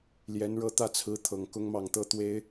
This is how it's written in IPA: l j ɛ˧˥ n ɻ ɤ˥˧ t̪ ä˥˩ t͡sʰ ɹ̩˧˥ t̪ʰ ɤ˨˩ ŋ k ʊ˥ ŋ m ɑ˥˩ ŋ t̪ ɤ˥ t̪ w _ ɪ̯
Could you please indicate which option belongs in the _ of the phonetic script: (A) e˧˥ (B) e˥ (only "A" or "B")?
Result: B